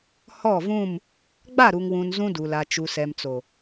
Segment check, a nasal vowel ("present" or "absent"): present